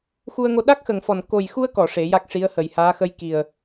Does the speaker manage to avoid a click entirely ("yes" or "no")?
yes